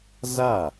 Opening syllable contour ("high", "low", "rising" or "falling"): falling